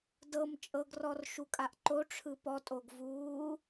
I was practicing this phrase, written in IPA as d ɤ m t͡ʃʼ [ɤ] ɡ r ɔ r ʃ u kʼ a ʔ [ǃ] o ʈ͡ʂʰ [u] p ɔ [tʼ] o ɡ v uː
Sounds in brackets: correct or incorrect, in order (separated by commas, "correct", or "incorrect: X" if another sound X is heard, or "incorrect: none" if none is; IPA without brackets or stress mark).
correct, correct, incorrect: ɯ, correct